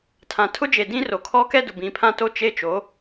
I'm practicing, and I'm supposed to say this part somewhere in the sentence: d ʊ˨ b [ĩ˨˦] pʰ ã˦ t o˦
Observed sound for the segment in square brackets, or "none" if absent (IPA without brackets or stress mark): ĩ˨˦